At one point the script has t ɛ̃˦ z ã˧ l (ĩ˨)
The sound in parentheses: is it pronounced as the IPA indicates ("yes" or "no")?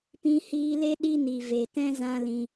no